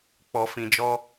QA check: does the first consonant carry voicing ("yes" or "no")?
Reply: no